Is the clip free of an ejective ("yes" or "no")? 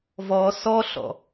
yes